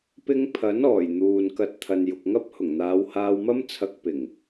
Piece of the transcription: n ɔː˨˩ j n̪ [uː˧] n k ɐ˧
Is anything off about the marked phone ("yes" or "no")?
yes